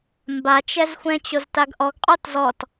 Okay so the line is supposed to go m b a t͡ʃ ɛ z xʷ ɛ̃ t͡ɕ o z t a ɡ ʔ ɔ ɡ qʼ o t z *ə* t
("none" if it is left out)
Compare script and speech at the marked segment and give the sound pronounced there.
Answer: ɔ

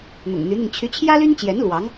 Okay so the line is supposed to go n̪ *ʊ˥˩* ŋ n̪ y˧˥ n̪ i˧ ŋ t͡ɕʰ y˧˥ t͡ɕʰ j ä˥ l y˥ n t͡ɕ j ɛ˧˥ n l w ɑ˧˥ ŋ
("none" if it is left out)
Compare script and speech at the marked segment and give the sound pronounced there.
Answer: ʊ̰˨˩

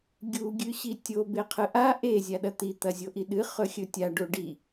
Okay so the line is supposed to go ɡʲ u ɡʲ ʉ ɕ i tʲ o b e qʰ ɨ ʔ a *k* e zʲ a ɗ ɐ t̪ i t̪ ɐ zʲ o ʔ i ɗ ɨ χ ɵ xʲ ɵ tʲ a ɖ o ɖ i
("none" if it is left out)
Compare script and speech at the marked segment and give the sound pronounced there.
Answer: ʔ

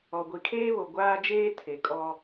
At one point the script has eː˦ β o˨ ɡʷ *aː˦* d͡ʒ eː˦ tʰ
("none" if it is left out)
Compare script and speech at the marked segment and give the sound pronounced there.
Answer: aː˦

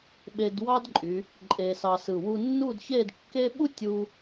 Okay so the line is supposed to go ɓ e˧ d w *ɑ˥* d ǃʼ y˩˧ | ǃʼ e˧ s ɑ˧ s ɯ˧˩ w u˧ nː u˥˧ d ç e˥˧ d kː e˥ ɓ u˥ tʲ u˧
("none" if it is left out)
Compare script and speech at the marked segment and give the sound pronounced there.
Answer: ɑ˥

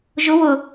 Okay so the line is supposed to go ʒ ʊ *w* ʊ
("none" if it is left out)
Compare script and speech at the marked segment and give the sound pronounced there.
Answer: w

